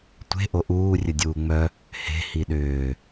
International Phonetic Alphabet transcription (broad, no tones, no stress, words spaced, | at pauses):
tʷe̤ ʔoʔuː rʲədʲuːŋ͡mœ | he̤ hiɗʏː